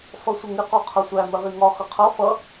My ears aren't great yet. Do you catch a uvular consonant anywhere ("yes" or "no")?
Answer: yes